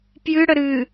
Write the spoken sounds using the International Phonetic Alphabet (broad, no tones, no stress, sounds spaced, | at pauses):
p j ɨ ɽ ə ɾ ɨ